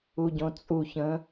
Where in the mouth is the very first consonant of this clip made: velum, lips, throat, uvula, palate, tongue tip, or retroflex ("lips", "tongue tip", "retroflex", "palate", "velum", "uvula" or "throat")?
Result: palate